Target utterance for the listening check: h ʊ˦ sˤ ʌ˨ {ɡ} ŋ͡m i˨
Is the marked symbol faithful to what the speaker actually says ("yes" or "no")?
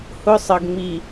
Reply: yes